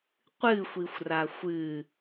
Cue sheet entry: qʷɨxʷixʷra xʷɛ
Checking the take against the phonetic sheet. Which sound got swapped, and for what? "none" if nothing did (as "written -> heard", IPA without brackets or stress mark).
ɛ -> ɨ